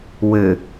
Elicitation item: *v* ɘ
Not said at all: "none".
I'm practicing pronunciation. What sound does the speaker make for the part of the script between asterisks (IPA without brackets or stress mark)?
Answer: w